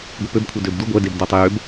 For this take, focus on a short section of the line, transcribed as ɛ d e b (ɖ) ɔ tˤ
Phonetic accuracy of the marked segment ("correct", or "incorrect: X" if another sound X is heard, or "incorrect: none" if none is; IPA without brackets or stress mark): incorrect: d